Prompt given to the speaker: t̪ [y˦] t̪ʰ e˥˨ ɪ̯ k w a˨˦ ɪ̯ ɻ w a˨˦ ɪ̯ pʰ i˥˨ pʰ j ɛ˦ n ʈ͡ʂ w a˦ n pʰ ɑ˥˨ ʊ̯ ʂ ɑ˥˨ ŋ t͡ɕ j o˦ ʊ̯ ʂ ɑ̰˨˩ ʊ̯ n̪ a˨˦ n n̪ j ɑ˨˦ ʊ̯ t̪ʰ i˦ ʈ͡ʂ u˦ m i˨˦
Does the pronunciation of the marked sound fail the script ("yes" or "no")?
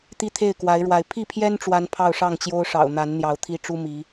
yes